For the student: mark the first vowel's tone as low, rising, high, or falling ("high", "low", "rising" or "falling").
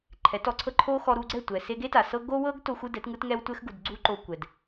rising